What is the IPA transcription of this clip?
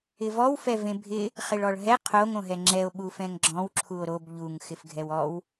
ɪ v ɔ w f ɛ v ẽ bʱ ɪ | χ ɪ ɭ ɔ ɭ ɦ ɛ qʰ o ŋ õ ɦ ɛ ŋ͡ǁ ɛ o̯ ɓ u f ɛ̃ ŋ ɡ͡ǁ ɔ̃ w ǁʰ u o̯ ɾ o b ʎ u ŋ x ɪ f ɡʱ ɛ w ɔ w

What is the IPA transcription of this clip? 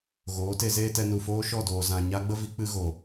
ɣ oː˨˦ t e˧ z eː˦ t ɛ˧ n u˨ f oː˦ ʃ ɔ˦˨ d oː˨ z ã˨ ɲ a˦ ɡ͡b ə˦ v i˧ k͡p ɨ˦ ɣ o˨

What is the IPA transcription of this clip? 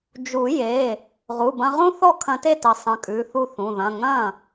d͡ʒ u˨˩˦ j e˩˧˩ | ʁ u˩˧˩ b ɐ̃˧ ʁ ũ˥ θ ɔ˥˩ kʰ ɐ̃˧ t e˥˩ t ə˨˩˦ sˤ ə̃˩˧˩ kʼ ʉ˩˧˩ θ u˥˩ θ ũ˩˧˩ ð ɐ̃˩˧˩ ŋ ɐ̃˥˩

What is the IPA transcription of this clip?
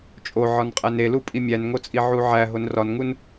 t͡ʃʼ o ʕ ɒ n qʼ æ n e l u pʼ i mʲ æ n ŋ o t͡sʼ i ʕ u ʕ æ ɦ o n r ɒ n ŋ u n

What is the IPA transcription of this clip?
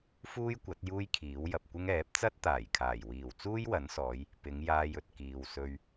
f uː˥ j kʷ ɐ˨˥ t̚ j uː˥ j kʰ iː˨˥ w j ɐ˨ p̚ kʷ ɪ˥ ŋ ɛː˨˥ p̚ t͡s ɐ˥ t̚ t̪ aː˨˩ j kʰ aː˨˩ j w iː˨˩ w t͡s uː˥ j w ɐ˨˥ n s ɔː˨˧ j | p ɪ˨˧ ŋ j aː˧ j ɵ˨ t̚ k iː˨ w s ɵ˧ ɥ

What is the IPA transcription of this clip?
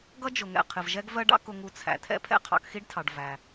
ɡ ʌ˥ d͡ʒ ʊ˩ ŋ ɛ̰˩ qʰ ɪ˩ v ʒ ɛ˥ ɡ v ɜ˥ ɖ ɑ̰˥ k ʊ˧ ŋ u˧ t͡sʰ æ̰˩ tʰ ɛ̰˥ pʰ ɛ̰˥ qʰ ɑ̰˧ k x i˥ ɖ tʰ ɑ˩ ɖ v æ˩

